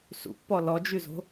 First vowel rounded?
yes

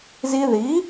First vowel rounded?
no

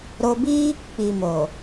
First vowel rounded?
yes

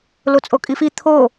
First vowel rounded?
yes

